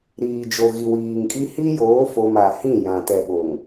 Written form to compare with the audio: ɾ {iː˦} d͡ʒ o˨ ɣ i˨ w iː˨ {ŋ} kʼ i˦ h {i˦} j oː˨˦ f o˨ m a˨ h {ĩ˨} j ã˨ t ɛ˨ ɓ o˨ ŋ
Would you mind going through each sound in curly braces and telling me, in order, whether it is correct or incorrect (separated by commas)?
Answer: incorrect, correct, correct, incorrect